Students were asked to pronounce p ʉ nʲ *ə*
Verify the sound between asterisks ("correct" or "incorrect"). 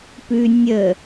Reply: correct